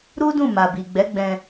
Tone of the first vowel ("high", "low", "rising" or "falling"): high